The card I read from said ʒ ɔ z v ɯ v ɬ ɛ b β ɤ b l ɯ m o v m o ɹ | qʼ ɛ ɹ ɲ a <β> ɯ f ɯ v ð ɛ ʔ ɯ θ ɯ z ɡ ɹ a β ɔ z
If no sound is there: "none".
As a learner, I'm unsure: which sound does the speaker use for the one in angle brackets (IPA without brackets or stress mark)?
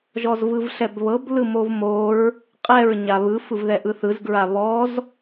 β